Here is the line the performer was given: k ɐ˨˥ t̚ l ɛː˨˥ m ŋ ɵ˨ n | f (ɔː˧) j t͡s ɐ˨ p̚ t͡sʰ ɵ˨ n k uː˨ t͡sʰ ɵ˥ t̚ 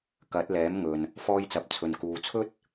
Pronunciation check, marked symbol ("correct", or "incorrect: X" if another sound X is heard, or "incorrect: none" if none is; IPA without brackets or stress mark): correct